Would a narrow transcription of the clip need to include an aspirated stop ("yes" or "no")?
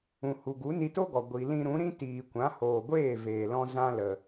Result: no